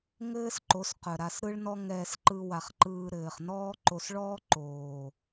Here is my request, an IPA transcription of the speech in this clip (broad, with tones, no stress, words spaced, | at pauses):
ŋɘː˦sǃo˨˦s qœ˨ ɾa˧sɾɯ˦ɭnɔ˦ ŋɛː˧s ǃɯ˧wa˨χ ǃɯː˧ɾɘː˨χnɔː˦ ǃo˧sɭɔː˦ ǃoː˨